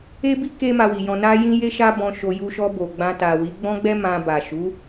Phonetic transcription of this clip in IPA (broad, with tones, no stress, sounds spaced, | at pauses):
e˦ b i˦ k e˦ m a˧ w i˨ j ɔ̃˧ n a˦ j ĩ˦ j e˦ ʃ a˦ b ɔ̃˧ ʃ o˧ j u˧ ʃ ɔ˧ b o˨ ɡ͡b ã˧ t a˨ w i˨˦ ɡ͡b ɔ̃˦ ɡ͡b ɛ˦ m ã˧ b a˨ ʃ u˨˦